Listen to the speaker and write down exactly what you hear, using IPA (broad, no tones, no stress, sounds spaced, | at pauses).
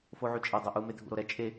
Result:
f o ʕ y t͡ʃʼ ɛ dˤ o ʔ u m e dʱ ṵ ɾ o ɾ ɛ t͡ʃʼ e